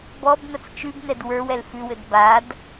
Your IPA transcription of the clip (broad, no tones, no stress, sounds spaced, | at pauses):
b ɔ b n ɐ t͡s t͡ʃ ʉ b n ɛ d w ə˞ w ɛ l f ʉ w ɘ d b a d